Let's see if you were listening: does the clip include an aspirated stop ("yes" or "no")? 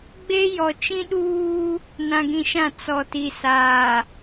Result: no